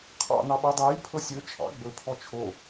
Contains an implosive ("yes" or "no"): yes